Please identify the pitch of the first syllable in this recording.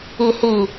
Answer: low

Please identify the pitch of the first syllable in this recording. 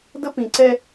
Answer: high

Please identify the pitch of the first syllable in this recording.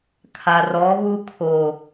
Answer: low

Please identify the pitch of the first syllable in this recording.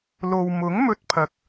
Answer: low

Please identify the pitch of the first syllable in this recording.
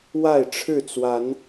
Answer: falling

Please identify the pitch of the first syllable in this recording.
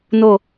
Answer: falling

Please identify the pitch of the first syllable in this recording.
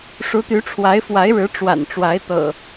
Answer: rising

